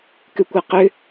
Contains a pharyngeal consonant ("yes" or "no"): no